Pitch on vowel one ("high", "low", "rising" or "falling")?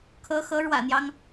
rising